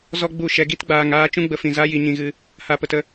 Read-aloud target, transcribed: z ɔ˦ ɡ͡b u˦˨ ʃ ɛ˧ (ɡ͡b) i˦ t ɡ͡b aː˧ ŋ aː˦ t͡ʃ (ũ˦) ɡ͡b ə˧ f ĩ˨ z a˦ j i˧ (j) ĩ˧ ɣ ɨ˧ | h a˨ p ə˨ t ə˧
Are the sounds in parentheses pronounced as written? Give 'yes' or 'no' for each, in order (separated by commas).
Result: no, yes, no